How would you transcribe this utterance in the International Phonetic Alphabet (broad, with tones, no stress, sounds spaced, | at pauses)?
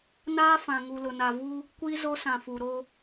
n aː˦ f ã˨ ŋ u˨ l ʊ˨ n a˨ v u˦ | kʷ i˦ z o˦ s ã˨ f u˨ ɾ o˦